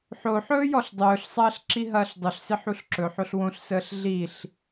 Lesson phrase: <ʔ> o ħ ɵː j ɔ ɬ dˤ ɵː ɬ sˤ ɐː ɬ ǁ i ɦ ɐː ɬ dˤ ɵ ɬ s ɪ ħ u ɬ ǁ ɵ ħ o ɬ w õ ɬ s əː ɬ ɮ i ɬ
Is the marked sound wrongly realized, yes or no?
yes